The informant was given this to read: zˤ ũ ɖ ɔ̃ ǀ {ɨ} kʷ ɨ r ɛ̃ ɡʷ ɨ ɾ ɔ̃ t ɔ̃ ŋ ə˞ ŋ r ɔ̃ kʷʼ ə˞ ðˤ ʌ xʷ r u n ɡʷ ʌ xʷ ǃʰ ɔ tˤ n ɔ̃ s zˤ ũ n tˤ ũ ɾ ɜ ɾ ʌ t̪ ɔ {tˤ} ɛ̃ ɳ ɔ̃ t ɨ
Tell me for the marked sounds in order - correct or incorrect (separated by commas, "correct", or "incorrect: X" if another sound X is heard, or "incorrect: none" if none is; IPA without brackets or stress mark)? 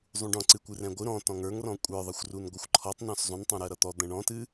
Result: correct, incorrect: d̪